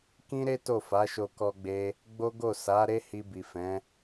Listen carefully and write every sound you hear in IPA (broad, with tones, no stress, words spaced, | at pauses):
kĩ˦ɾe˦ to˦˨fa˨˦ʃo˧ kɔ˧ɡ͡be˧ | ɡ͡bo˦ɡo˦˨ sa˨˦ ɾe˦hi˧bi˨fɛ̃˨˦